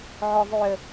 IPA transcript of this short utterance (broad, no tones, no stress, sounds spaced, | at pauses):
ʕ ʊ ðˤ y ə̯